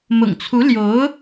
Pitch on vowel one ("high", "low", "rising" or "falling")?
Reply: low